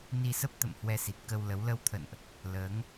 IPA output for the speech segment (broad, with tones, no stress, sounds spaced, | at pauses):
n i˧ s ə˦˥ p̚ t̪ ə̰˧˨ m h w ɛ˧ s i˨˩ t̚ k ə˧ w l ə˨˦ w l ə˧ w t̪ʰ ə̰˧˨ n ʔ | l əː˨˦ ŋ